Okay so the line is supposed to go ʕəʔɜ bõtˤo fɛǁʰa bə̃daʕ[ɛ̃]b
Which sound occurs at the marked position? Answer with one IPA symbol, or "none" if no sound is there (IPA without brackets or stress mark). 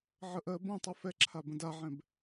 ɛ̃